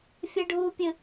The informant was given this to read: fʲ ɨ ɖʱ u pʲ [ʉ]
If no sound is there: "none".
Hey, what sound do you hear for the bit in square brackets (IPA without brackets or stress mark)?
ɨ